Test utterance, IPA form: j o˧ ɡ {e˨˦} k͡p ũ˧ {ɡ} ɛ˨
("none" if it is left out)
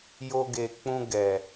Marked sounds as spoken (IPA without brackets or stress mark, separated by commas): e˨, ɡ